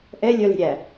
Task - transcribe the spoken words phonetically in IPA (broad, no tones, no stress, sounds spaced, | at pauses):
ʔ ɛ lʲ œ l e̤ ɾʲ æ